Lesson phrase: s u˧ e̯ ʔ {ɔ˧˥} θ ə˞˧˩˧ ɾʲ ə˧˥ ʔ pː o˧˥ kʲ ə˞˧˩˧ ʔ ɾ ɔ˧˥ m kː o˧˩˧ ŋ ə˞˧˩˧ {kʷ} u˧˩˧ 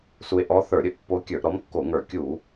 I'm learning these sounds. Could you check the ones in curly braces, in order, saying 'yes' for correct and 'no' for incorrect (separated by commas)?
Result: yes, no